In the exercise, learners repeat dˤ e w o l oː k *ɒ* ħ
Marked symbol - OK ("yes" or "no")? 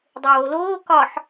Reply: yes